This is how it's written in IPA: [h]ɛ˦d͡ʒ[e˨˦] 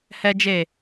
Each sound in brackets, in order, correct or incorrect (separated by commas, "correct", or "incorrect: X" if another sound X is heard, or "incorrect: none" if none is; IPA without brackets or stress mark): correct, incorrect: e˦˨